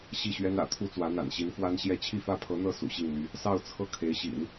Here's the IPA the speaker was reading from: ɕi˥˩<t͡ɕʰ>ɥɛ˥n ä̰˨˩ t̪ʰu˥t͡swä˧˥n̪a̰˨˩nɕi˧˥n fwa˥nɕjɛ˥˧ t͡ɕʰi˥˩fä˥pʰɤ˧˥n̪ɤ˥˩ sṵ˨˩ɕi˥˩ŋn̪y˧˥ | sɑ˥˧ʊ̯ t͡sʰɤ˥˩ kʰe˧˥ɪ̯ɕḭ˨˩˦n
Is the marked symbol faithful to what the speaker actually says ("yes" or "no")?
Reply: no